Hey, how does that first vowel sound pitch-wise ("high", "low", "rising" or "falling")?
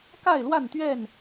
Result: falling